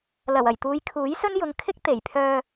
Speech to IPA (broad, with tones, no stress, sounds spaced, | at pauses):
l ɐ˨˩ w ɐ˨˩ j t̪ uː˨˧ j kʰ uː˨˥ j s ɵ˥ n j ʊ˨˧ ŋ kʰ ɪ˥ k̚ t̪ e˨˩ j pʰ œː˧